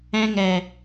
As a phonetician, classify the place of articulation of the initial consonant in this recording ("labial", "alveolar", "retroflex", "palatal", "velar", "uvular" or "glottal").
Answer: velar